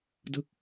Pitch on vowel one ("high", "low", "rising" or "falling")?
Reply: falling